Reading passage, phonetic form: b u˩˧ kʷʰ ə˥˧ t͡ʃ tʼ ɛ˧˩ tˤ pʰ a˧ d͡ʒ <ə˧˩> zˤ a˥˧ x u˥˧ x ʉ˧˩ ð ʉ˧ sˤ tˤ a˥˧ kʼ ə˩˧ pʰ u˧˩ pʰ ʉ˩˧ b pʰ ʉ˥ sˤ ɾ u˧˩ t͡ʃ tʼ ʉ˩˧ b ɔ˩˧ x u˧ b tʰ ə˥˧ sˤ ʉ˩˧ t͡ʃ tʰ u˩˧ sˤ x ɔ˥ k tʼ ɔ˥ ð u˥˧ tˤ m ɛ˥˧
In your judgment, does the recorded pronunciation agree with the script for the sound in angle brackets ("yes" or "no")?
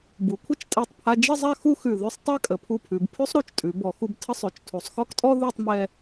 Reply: no